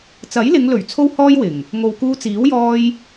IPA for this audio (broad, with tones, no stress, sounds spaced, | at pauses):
t͡s ɐ˨˥ j l ɪ˨˧ ŋ l ɵ˨˩ ɥ t͡sʰ o˥ w h ɔː˥ j w ɪ˨˩ ŋ | ŋ o˨ w k uː˧ t͡s iː˨˥ w j ɔː˧ j